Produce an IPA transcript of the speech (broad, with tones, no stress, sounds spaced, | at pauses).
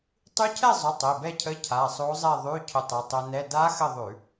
tˤ ʉ˧˥ cʰ ɛ˥˨ zˤ ʊ˩˧˩ tˤ e˩˧˩ b ɛ˥˨ cʰ ə˧˥˧ cʰ a˩˧˩ sˤ o˧˥ zˤ ɛ˥˨ ðˤ ʉ˧˥˧ cʰ ʊ˧ tˤ ʊ˩˧˩ tˤ o˧ n ɛ˧˥˧ d a˧˥ x ə˥˨ ðˤ ʉ˧˩˧